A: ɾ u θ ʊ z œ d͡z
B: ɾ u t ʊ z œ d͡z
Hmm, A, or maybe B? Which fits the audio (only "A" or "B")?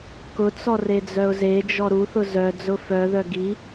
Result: A